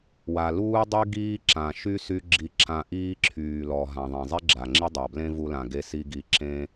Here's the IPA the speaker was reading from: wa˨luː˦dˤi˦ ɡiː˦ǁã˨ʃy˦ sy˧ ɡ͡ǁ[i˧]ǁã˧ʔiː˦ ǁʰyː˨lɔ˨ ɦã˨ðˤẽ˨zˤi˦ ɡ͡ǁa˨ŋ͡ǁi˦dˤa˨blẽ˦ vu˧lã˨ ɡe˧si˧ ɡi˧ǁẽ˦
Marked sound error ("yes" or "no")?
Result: no